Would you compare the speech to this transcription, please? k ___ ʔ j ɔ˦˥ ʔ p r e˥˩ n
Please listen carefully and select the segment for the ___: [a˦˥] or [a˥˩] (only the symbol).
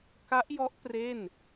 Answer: a˦˥